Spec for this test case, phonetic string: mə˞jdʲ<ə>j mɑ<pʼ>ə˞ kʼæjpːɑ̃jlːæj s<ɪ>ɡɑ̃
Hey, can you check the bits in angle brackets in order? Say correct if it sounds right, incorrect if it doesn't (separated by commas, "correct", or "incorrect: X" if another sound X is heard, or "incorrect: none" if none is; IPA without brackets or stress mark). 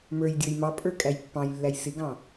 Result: incorrect: ə˞, correct, correct